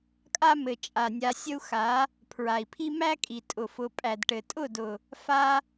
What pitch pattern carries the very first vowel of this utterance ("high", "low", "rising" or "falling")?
high